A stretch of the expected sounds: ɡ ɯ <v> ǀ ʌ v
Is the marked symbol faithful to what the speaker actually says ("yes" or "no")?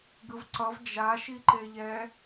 yes